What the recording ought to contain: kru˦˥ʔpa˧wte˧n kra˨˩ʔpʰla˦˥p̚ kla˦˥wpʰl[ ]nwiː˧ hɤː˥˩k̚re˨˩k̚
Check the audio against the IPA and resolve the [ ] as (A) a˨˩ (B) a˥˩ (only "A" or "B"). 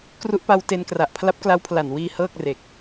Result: A